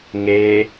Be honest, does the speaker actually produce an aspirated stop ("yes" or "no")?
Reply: no